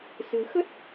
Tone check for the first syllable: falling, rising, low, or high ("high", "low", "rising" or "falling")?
rising